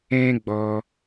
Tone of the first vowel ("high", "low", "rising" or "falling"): high